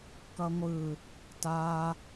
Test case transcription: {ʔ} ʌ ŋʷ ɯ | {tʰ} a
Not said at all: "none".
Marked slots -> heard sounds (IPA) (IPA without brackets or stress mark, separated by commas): k, t